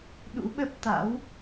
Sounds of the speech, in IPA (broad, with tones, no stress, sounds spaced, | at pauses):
ɗ ṵ˧˥ ɓ ə˦˥ p̚ t̪ a̰˧˥ w